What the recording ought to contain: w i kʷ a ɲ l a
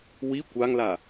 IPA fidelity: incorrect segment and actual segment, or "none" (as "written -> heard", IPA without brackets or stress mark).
ɲ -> ŋ